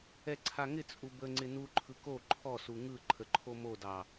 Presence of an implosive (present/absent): absent